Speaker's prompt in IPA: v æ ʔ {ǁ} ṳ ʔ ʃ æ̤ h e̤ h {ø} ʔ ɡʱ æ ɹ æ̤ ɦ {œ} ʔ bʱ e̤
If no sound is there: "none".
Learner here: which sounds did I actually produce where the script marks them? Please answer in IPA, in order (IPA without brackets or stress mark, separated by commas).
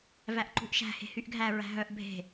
ǃ, y, œ